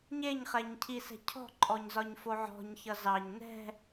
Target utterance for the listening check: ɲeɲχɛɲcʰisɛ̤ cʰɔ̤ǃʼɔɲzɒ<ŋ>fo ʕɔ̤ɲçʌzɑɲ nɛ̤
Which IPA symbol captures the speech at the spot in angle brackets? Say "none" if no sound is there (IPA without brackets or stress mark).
ɲ